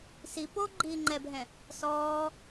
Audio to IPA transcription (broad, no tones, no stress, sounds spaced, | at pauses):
s i p o ɡ͡ǃ iː ŋ͡ǃ ɛ bʱ ɛ̃ | s ɔː